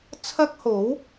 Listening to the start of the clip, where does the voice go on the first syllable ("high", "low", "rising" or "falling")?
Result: high